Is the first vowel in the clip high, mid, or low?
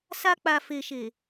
low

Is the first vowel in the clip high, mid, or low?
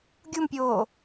high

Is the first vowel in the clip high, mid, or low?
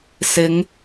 high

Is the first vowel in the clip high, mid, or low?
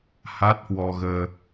low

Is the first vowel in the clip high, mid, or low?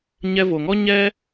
mid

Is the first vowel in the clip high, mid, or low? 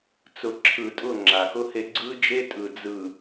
high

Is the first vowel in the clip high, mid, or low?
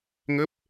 mid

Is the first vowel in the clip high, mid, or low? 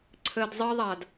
mid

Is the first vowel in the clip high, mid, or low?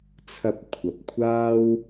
low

